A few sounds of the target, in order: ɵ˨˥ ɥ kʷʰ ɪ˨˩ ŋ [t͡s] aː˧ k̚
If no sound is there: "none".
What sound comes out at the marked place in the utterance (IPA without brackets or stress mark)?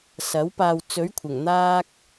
n̪